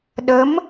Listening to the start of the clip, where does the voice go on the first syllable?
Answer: rising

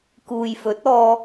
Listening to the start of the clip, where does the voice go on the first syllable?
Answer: low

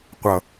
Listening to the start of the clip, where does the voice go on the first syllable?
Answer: low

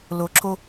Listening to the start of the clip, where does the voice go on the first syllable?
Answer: low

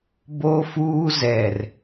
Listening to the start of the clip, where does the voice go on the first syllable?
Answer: high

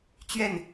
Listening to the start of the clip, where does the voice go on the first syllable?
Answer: falling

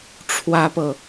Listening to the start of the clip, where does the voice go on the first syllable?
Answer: high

